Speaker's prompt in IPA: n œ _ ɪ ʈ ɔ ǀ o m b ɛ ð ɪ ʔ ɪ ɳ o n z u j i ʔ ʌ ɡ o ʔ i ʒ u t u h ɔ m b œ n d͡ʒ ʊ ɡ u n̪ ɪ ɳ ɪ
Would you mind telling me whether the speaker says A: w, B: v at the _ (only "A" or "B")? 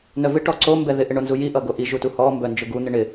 B